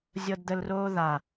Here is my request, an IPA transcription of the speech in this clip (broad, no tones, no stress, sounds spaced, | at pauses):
zʲ ɤ d d̪ ə l r oː ð a